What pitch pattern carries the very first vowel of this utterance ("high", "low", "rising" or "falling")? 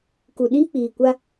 low